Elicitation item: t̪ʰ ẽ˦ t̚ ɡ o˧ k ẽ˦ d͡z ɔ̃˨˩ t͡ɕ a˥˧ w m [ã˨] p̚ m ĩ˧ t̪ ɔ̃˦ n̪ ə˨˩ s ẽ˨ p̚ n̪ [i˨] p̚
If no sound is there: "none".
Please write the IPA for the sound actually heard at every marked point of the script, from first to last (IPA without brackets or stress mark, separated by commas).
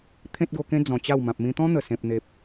ã˨, e˨